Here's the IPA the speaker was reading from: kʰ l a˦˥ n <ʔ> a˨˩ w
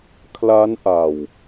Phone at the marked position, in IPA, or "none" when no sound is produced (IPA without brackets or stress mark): ʔ